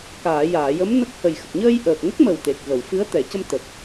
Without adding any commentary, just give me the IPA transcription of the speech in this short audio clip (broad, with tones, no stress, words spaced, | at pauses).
kaː˨˩˨jaː˨˩˨jə˧˥m nə˦˥k̚hə˨˩j xə˨˩k̚ɲəː˧j ʔəː˨˩k̚ŋə˦˥k̚mə˨˩w t̪e˨˩k̚ɣə˨˩˨wfɨ˧˥ə̯ t̪ɛ˨˩˨cə˧m t̪ə˨˩k̚